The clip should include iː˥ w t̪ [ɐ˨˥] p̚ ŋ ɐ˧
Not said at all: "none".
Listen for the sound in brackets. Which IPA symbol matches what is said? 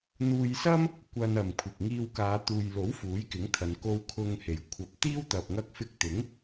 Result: ɐ˨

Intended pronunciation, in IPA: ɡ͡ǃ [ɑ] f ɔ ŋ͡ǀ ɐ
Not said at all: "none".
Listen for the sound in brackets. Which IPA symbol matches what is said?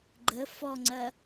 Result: ə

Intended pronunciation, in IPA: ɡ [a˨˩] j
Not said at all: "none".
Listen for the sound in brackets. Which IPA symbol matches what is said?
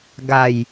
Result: a˨˩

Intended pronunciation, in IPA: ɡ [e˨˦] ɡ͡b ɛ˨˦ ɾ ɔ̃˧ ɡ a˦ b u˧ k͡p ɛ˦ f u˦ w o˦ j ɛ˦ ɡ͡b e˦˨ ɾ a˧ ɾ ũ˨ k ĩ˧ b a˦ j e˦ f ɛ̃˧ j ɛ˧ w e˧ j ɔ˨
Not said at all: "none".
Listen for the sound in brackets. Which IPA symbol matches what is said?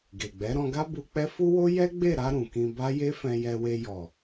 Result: e˨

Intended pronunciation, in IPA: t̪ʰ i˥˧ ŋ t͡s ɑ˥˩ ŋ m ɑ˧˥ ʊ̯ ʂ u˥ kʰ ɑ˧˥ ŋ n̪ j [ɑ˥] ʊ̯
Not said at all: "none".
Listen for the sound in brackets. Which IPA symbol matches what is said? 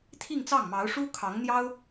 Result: ɑ˥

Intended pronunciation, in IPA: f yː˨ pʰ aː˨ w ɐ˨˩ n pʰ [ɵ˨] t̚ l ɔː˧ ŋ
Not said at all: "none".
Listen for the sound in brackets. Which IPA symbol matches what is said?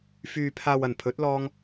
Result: ɵ˨˥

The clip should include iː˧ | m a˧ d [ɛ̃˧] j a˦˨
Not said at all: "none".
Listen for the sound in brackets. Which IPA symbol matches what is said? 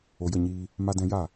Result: ɛ̃˧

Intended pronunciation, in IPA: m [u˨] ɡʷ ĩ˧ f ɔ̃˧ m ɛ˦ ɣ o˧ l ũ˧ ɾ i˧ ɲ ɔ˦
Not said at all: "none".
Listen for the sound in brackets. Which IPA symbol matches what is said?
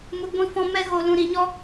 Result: u˨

